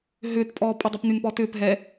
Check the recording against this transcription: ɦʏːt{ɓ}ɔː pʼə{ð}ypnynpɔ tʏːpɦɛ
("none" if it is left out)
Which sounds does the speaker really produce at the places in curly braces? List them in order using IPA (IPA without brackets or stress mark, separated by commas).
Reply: pʼ, dˤ